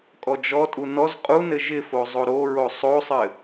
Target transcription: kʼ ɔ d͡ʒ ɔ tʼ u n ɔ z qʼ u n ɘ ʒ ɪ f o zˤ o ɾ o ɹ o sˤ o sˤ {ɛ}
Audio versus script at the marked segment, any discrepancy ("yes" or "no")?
yes